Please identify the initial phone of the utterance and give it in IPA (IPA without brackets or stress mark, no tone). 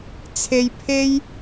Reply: t͡sʰ